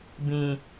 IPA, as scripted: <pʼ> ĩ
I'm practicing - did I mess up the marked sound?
yes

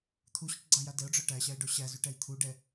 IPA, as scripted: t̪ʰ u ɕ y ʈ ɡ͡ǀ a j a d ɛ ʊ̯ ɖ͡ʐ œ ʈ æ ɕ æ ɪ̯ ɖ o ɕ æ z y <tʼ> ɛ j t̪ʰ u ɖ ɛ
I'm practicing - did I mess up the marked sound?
yes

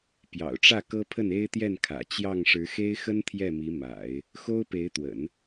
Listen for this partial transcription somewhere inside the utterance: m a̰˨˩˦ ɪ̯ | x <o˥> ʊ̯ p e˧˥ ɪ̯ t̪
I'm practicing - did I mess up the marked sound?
no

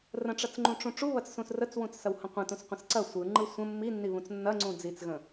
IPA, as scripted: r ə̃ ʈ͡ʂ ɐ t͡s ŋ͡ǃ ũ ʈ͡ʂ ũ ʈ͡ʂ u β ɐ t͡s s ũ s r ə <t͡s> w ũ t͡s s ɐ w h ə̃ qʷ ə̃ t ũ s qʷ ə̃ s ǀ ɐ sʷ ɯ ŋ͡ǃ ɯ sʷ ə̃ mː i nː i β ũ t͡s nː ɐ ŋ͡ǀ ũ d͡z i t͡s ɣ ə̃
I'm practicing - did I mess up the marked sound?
no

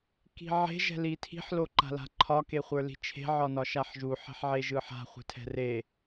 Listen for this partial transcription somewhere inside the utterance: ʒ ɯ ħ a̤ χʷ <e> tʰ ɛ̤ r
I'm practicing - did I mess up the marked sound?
yes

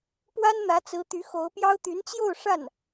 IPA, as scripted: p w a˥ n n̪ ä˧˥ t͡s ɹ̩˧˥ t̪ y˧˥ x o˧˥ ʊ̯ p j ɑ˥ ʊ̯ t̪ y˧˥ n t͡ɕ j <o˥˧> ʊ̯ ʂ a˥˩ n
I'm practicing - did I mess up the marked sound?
no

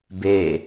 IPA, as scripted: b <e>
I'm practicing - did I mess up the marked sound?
no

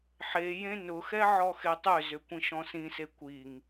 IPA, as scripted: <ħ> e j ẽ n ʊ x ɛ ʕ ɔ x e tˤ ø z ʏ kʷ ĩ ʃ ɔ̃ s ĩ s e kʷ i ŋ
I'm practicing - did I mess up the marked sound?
no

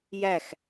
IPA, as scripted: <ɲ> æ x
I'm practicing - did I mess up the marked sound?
yes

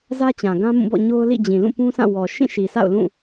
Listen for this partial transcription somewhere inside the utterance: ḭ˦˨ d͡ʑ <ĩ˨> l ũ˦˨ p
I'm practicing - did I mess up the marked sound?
no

